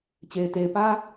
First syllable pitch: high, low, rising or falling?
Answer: low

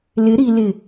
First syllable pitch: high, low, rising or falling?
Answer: rising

